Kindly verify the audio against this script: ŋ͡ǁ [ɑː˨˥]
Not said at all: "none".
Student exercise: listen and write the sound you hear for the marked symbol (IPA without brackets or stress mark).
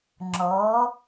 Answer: ɔː˨˥